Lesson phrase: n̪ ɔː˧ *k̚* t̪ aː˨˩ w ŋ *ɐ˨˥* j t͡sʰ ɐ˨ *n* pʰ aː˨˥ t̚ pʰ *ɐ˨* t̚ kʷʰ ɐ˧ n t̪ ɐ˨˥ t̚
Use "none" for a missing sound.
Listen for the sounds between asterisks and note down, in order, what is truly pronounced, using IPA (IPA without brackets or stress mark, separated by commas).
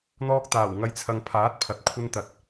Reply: k̚, ɐ˨˧, ŋ, ɐ˨